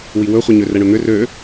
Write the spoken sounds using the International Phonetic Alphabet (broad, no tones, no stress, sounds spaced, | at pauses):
w i w ɵ χʷ i ɲ ø r ɛ ɳ ɵ n̪ ʏ r ø